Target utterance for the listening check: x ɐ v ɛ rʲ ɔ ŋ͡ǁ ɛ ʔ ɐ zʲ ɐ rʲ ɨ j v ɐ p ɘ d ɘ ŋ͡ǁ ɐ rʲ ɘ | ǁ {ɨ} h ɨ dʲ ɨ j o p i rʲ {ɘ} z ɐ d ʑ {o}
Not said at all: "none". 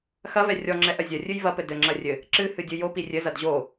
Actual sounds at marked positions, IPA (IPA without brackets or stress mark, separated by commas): ɨ, ɘ, o